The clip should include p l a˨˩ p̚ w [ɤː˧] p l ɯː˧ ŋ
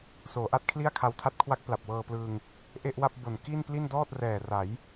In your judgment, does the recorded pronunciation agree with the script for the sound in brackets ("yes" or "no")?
yes